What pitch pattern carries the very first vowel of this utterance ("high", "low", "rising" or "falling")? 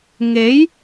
rising